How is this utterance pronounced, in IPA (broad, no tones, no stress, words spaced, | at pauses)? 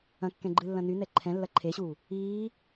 ɐ̃ kːɛ̃ɡ͡ǃɨlːɐ̃ nynɛ ǃʰɛ̃lːɐ ǃʰeɕu | iː